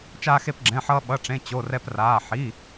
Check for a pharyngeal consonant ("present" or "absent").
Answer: present